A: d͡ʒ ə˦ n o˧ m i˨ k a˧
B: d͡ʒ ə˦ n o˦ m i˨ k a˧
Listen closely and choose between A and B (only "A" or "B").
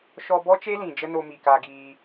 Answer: A